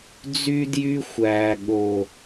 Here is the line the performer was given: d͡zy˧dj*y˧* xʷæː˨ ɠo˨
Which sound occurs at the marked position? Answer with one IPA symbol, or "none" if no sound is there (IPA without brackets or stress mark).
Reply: y˧